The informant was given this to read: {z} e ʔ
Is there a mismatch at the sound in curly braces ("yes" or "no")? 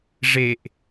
yes